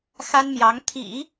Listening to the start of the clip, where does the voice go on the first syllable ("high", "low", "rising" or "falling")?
high